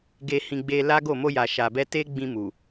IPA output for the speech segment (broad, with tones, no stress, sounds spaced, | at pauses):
ɡ e˧ h ĩ˧ ɡ͡b e˧ l a˦ ɡ o˦˨ m o˧ j a˨ ʃ a˨ b ɛ˧ t e˦ ɡ͡b ĩ˧ m u˨